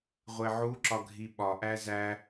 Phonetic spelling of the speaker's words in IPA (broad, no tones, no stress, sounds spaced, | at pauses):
ʁʷ e ʕ u ǁ ɒ ɡʱ i ɓ ɒ ʔ æ z æ